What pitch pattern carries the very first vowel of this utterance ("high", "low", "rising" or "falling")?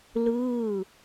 falling